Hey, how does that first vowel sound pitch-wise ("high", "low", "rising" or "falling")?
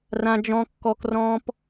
high